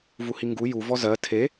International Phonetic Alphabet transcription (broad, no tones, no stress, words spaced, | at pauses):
vuhiŋɡu ju vɔzɜ tʰe